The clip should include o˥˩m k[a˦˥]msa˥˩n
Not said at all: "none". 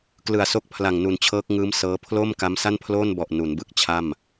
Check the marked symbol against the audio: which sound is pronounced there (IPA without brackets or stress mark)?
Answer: a˦˥